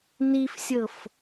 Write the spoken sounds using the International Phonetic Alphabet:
n i f sʲ ɤ f

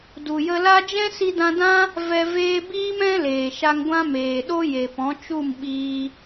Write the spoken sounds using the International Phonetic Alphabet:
d u˨ j ə˧ l a˦ d͡ʒ ɛ̃˦ s i˧ d ã˧ d ã˦ | v ɛ˧ v eː˧ b iː˦ m ɛ̃˦ l eː˨ ʃ a˧ ŋ ɡʷ ã˦ m eː˨ ɗ o˦ j e˨ p ɔ̃˨˦ t͡ʃ u˦˨ m ɓ iː˧

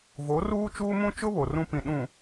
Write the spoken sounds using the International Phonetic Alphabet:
v o˨˦ r uː˦ t͡ʃ uː˦ m ũ˦ t͡ʃ ʊ˦ β o˨ r ũ˦ p ĩ˨ ɗ ũ˨

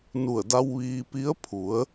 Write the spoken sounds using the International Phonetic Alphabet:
n u˧˩ ə̯ d a˧ w ʋ iː˧ p i˧˥ ə̯ pʰ u˩˧ ə̯

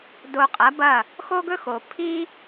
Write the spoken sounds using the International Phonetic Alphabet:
d o˧ qʼ ɐ˩˥ b ɐ˥˩ | x o˥ ɡ ɵ˥ x o˩ pʰ i˥

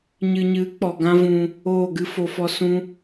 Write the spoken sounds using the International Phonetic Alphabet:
ɲ ɨ˨ ɲ ɨ˨˦ k͡p ɔ˨ ɡ ã˦ v ũ˧ | oː˦˨ ɡ ɨ˦ f o˧ f ɔ˦ s ũ˦

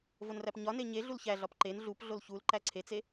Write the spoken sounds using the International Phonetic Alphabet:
v o n r æ p ɲ ɒ n e ɲ e ɮ u l ç æ ɮ ɒ p ǃ e n ɮ u p ɮ o l ç u l ǃ æ ǀʰ e t͡s e

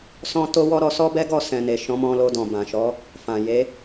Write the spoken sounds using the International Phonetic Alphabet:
s ɔ̃˧ t o˧ w ɔ˦ ɾ ɔ˧ s ɔ˦ b ɛ˦ ɡ ɔ˦˨ s ɛ̃˨ n e˨ ʃ ɔ̃˨˦ m ɔ̃˧ l o˧ d ɔ̃˨ b ã˨ ʃ ɔ˨˦ | f ã˨ j e˨˦

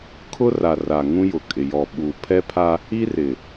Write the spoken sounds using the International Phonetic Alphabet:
kʰ ʊ˦ r a˨ r a˨ ŋ ũ˦ j ʊ˨ kʼ ɪ˨ j ɔ˨ ɓ u˨ pʰ ɛ˦ pʰ a˦ | i˦ r ɪ˨

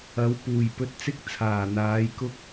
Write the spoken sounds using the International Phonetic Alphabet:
ɐ˨˥ w p uː˨˩ j p ɵ˧ t̚ t͡s ɪ˥ k̚ t͡sʰ aː˨˩ n̪ aː˨˥ j k ʊ˥ k̚

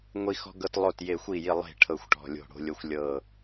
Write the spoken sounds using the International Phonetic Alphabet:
ŋʷ i˦ x ɔ̤˦ ɡ ɤ˦ t lˠ o˦˨ t j e˦˨ xʷ i˦˨ j i˦˨ lˠ e̤˦˨ ʈʰ ɤ˦˨ xʷ ʈ ɔ̤˦˨ lʲ o̤˦˨ ɽ o̤˦ lʲ o˦ xʷ lʲ ɤ˦˨

